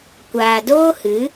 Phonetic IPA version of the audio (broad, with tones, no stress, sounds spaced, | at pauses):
kʷ aː˨ d oː˦ h ɨ˨˦